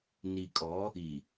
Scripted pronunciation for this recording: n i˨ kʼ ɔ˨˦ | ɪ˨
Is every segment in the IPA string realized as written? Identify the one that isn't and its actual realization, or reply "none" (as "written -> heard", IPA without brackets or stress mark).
ɪ˨ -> i˨